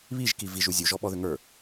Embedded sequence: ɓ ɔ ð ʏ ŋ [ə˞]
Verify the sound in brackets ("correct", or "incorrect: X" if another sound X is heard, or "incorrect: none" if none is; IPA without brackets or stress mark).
correct